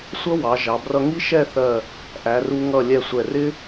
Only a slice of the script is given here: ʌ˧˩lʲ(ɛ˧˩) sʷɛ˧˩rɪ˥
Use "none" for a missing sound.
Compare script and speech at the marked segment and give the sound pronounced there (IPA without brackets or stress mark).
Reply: ɛ˧˩